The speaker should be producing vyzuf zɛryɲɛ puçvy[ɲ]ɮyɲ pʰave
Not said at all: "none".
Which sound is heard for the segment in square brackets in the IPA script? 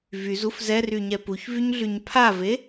ɲ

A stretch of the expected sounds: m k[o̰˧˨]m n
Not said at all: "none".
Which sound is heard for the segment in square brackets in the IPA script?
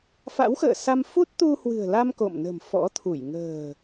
o̰˧˨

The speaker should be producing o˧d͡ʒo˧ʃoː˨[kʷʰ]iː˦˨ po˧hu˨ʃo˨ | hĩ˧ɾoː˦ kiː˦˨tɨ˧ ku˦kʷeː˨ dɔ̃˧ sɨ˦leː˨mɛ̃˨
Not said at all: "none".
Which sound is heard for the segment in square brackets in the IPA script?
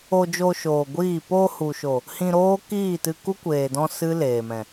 ɡʷ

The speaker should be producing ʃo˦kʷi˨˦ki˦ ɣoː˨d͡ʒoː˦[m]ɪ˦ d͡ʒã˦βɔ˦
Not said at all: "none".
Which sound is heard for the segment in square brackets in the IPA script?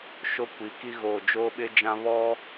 ɓ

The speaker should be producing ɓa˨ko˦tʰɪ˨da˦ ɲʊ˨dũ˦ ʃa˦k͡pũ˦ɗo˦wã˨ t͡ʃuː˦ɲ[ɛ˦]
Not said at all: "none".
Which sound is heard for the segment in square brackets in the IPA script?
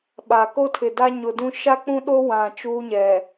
ɛ˨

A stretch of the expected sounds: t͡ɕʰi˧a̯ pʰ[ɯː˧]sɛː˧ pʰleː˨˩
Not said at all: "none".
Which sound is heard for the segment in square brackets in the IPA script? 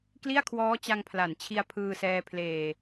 ɯː˧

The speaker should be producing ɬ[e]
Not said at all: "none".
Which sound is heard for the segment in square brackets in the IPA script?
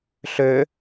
ø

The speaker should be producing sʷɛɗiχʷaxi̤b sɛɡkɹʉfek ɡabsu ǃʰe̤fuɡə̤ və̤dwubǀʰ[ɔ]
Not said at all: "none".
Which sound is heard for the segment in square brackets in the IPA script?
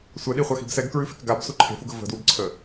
ə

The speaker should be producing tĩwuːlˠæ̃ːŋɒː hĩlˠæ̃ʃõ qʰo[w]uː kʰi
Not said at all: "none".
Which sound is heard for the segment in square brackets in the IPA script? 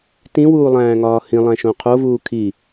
v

